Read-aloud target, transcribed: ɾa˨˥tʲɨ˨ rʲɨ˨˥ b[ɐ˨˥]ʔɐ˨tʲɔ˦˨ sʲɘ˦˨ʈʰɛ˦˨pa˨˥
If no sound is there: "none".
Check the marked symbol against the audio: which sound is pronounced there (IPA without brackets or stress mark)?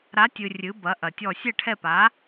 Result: ɐ˨˥